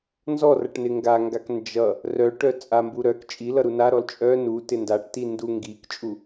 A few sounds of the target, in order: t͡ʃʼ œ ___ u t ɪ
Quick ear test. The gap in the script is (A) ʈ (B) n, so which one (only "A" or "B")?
B